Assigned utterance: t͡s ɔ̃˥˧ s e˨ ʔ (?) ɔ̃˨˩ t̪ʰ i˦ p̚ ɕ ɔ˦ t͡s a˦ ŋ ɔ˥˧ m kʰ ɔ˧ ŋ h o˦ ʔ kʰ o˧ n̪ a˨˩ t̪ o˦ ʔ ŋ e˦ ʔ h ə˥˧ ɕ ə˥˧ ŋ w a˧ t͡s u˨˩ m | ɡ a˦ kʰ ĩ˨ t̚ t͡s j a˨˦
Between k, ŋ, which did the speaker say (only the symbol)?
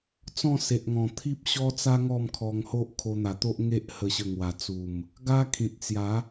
ŋ